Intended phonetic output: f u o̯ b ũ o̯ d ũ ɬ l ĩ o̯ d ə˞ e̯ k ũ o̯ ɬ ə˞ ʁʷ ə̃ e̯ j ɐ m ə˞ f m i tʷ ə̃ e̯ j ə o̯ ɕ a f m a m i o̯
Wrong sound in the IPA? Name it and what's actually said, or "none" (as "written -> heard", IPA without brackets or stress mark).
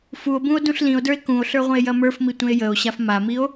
none